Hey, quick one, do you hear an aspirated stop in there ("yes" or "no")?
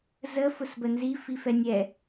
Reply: no